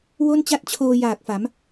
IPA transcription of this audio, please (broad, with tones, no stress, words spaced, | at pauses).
wo˥˩nt͡ɕa˥˩t̚t͡ɕʰoː˧ jaː˨˩k̚fa˩˦m